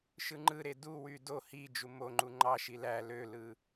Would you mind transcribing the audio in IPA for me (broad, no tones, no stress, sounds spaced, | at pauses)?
ʃ ɯ ŋ͡ǃ ɯ ɾ e d u w y d o h i d͡ʒ u m o ŋ͡ǃ u ŋ͡ǃ ɑ ʃ i l æ l ø l ɯ